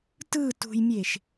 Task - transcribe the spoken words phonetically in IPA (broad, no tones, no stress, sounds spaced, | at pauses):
t ɯ t ṳ j mʲ e ʃ